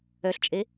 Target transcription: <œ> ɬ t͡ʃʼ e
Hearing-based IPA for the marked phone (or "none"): œ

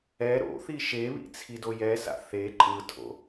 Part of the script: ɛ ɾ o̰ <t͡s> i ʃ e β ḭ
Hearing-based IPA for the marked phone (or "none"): θ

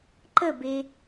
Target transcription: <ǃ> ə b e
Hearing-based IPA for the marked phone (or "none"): ǃ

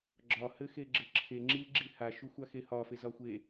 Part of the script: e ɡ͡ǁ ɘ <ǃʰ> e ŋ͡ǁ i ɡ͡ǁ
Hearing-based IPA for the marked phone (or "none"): ǁʰ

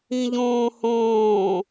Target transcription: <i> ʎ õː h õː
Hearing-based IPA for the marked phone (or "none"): ĩ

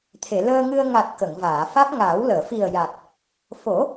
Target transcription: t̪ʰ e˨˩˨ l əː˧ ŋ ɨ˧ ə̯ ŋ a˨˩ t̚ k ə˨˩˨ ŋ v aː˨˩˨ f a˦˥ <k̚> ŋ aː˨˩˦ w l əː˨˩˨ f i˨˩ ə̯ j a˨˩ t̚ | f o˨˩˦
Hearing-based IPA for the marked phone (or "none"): k̚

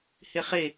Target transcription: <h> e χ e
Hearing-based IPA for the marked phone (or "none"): h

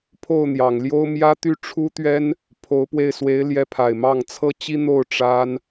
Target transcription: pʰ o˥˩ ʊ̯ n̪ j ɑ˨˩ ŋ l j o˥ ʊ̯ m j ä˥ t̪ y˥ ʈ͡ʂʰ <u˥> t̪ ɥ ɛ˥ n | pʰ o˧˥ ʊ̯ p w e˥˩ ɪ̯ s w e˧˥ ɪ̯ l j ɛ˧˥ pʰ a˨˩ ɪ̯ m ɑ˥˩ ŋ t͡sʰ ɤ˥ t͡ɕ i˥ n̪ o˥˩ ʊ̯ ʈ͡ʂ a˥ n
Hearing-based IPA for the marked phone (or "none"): u˥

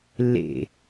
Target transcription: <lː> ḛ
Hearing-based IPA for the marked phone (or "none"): lː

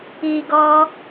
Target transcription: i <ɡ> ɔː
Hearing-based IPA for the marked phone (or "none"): ɡ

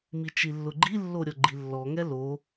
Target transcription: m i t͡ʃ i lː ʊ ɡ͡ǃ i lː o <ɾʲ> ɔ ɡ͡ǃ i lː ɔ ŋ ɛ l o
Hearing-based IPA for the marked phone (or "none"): ɾʲ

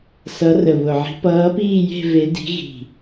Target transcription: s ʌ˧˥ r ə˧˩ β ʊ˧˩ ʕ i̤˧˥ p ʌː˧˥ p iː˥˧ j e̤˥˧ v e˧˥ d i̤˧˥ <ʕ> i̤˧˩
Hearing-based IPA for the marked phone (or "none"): ɣ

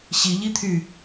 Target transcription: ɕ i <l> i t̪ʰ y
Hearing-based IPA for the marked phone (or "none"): ʎ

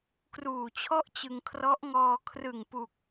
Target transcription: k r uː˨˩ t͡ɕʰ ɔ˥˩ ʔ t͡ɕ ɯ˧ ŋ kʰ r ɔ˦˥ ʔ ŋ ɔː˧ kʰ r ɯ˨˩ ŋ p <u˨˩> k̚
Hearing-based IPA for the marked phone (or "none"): u˨˩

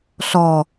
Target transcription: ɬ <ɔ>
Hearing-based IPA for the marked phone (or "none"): ɔ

